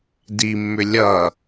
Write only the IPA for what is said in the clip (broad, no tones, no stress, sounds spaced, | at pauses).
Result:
d i mː ʏ lʲ ʌ